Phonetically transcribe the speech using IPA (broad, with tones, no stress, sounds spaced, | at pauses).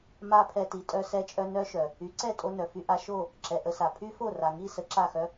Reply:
m a˦ pʰ ɛ˧ t i˨ tʼ œ˧ s ɛ˧ t͡ʃʼ œ˧ n œ˦ ʃ œ˨ | y˨˦ ǀ ɛ˦˨ tʼ o˧ n œ˨ f y˧ ʔ a˧ ʃ o˦˨ | ǁ ɛ˨ ʔ ə˧ s a˨ pʰ y˦ f o˦˨ r a˨ ŋ i˦˨ s ə˧ ǁ a˦˨ x œ˦